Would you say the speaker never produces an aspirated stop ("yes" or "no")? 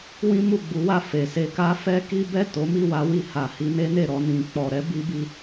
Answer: yes